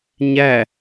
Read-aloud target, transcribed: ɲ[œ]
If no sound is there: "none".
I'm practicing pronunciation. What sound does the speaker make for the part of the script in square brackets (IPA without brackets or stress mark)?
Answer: æ